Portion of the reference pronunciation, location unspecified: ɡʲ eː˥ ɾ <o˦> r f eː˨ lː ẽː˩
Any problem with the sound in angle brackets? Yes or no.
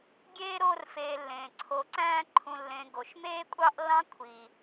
no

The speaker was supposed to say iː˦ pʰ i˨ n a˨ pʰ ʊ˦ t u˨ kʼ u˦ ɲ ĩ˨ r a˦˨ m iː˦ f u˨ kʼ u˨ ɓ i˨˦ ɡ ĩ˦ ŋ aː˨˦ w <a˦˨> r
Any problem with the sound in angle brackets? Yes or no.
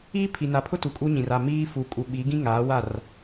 no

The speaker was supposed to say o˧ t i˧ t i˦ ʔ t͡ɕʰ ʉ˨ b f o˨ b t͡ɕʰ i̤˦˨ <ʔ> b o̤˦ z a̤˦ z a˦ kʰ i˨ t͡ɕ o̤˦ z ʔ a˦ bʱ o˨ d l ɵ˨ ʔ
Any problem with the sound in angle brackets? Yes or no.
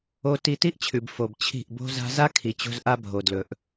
no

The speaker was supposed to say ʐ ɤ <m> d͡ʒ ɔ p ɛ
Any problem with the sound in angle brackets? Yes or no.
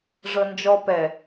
yes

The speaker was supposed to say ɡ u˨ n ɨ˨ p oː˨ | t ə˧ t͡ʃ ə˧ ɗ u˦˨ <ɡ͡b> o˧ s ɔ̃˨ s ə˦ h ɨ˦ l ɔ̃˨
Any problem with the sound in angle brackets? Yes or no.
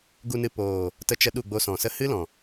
no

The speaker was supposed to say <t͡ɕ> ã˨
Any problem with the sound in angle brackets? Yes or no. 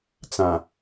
yes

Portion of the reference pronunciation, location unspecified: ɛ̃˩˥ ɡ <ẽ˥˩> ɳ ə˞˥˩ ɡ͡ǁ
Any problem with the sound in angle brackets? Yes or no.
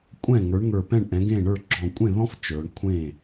no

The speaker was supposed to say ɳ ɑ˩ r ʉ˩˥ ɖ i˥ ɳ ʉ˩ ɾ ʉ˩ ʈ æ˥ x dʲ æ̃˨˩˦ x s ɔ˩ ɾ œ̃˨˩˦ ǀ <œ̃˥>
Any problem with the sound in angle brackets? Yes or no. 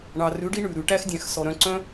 no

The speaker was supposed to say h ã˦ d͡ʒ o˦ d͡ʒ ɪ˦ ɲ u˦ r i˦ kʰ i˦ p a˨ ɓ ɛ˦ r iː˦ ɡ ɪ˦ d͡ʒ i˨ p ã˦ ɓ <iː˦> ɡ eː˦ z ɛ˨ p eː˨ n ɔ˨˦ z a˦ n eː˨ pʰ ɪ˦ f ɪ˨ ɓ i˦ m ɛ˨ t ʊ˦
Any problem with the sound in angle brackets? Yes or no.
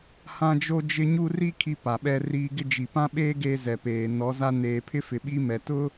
yes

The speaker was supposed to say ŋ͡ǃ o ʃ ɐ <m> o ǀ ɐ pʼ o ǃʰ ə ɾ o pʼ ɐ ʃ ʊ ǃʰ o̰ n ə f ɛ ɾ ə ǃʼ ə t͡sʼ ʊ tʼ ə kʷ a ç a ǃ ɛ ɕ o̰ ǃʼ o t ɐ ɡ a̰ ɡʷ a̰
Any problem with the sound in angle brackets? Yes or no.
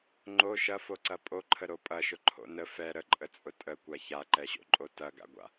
yes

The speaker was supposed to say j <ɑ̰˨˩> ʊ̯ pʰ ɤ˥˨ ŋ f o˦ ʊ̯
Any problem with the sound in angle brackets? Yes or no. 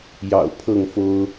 no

